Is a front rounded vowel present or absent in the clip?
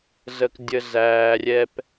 absent